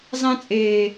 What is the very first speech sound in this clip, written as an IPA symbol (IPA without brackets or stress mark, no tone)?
zˤ